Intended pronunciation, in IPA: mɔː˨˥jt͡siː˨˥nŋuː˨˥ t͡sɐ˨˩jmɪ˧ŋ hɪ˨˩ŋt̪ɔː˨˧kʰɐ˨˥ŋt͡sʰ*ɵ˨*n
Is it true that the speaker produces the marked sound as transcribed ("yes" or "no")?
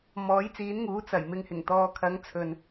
yes